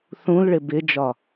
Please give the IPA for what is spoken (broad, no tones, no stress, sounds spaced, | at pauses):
θ ũ l ɭ ɪ b ɪ d͡ʒ ɒ